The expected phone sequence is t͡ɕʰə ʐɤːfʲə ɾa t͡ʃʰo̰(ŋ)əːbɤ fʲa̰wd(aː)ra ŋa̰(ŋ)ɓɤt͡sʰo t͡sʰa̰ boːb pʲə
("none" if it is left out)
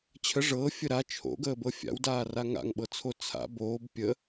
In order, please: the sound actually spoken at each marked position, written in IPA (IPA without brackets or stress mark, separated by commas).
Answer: ɡ, aː, ŋ